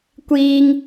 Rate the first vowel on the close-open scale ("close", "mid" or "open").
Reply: close